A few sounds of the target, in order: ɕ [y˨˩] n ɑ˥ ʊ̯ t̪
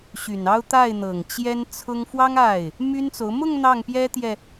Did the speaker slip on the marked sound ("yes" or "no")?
no